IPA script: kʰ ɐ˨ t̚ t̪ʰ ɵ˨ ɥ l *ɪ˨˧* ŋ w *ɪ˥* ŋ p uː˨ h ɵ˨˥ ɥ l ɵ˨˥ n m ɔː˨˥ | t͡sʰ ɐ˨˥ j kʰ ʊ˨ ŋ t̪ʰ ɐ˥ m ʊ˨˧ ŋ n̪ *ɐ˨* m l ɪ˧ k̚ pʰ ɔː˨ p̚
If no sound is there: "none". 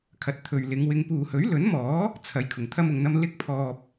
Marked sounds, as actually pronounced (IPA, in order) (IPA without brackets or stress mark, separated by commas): ɪ˨˧, ɪ˨˧, ɐ˥